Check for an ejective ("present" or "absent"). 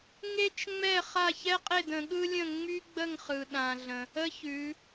present